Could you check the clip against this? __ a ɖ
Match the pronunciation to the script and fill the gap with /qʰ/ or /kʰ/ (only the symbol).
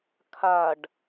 kʰ